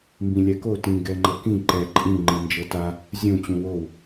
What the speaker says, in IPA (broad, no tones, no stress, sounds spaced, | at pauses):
m b ĩ lʲ ɛ k o t ĩ ɡ ɛ ŋ͡ǃ ɤ k ĩ ǃ ɛ ǃʼ ĩ ŋ͡ǃ ĩ n d͡ʒ ɤ t a | zʲ ũ t͡ɕ ũ w o w